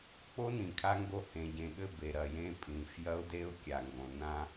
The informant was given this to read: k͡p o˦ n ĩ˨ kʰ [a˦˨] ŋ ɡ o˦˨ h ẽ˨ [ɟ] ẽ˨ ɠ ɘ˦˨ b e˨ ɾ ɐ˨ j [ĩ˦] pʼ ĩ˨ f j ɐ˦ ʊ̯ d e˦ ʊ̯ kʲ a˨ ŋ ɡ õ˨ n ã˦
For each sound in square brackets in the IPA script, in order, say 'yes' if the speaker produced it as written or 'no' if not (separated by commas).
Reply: no, yes, no